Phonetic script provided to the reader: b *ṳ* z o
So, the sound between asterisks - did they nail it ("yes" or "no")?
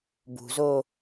yes